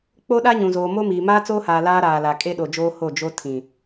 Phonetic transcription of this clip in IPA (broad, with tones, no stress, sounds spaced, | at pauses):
k͡p o˦ ɗ a˦ ɲ ũ˨ z oː˨ m o˦ m iː˨ m aː˦ t͡s oː˦ h aː˨ l aː˦ ɾ aː˨ l a˨ kʼ e˦ ɗ o˨ d͡ʒ oː˦ h o˦˨ d͡ʒ o˦ tʰ ĩ˨